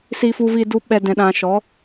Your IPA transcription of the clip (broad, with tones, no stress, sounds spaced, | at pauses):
s i˦ f u˦ v i˦ d u˦ ɓ ɛ˦ d ɛ̃˧ ɗ ã˧ ʃ ɔ˨˦